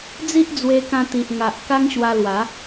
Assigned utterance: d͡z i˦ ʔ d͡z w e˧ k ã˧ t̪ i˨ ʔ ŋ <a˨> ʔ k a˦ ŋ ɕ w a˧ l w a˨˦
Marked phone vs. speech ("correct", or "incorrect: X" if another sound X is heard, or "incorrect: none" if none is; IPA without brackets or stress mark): correct